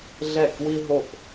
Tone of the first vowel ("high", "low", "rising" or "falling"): falling